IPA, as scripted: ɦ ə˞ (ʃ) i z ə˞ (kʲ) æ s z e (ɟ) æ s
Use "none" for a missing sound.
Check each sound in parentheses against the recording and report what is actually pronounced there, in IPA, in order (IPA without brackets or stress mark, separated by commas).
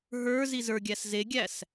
z, ɡʲ, ɡʲ